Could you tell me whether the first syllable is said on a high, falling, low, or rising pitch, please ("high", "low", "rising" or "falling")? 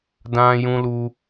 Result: high